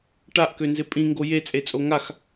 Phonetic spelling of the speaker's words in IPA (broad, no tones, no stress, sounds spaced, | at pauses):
ʈ a ʔ k ø n z ɪ pʼ ĩ ŋ ɡ o j e t͡sʼ e t͡sʼ o ŋ a x